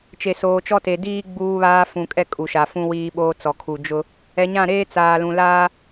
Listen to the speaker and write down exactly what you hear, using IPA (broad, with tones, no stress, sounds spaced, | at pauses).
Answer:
t͡ʃ e˨ s oː˨ t͡ʃ ɔ˦ t e˨ d iː˦ ɡ͡b uː˦ β aː˦ f ũ˨ kʼ ɛ˦ kʼ u˨ ʃ a˨ f ũ˦ w iː˦ ɓ oː˦ t͡s ɔ˨ kʰ u˨ d͡ʒ ʊ˦ | ɛ˨ ɲ ã˦˨ ɾ eː˦ t͡s aː˨ l ũ˨ l aː˦